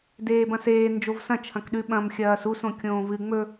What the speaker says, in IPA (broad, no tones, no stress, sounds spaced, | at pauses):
d eː b ɐ̃ s eː n d͡ʒ o v s ɐ̃ t͡ʃʰ ɐ̃ k ɗ ʉ ɓ ɐ̃ m xʲ ɐː s u s õ kʲ õː v ɨ ŋ͡m ɵ